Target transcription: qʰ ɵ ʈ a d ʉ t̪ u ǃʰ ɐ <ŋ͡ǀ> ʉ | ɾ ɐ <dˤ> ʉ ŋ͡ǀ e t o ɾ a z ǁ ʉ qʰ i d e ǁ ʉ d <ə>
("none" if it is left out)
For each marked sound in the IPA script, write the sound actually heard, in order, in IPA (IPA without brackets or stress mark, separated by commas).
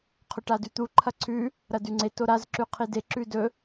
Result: ǀʰ, d, ɵ